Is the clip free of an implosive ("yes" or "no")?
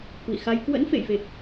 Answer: yes